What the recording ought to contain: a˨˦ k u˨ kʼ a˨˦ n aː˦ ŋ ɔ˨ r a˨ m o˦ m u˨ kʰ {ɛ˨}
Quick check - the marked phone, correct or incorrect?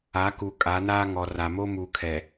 correct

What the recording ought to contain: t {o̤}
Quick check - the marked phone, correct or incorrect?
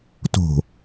correct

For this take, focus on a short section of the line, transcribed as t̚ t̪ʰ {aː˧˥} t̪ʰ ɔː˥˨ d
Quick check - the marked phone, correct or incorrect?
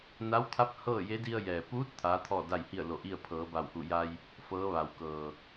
correct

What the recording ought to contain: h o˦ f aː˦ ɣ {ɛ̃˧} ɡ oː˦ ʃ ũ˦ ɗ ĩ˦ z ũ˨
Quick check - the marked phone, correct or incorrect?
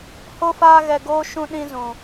incorrect: ɛ˧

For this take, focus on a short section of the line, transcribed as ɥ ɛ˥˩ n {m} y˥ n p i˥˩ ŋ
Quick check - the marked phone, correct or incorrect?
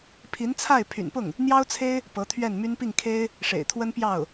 correct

